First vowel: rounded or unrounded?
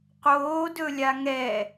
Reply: rounded